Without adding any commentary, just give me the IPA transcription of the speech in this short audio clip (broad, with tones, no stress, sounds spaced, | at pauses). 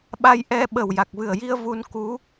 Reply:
ɓ a˧ j ʔ ɛ˧ ɓ ə˨˩ w j a˨˩ k̚ v ɨ˨˩ ə̯ j i˧ ə̯ v u˧ n k u˧˥